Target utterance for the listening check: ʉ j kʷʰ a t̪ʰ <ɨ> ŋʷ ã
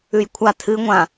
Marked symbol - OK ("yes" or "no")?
yes